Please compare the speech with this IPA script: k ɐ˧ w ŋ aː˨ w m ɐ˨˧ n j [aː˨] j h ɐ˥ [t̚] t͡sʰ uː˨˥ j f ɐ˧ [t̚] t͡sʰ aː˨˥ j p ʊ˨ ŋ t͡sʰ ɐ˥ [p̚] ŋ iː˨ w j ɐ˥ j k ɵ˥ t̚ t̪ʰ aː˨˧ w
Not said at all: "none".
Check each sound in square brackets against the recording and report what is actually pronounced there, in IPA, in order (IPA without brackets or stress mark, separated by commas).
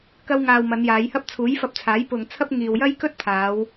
aː˨˧, p̚, p̚, p̚